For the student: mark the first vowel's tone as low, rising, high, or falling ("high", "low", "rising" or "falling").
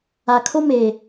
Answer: low